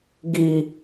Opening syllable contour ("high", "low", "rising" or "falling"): high